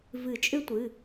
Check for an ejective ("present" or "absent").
present